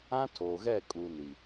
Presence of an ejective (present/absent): present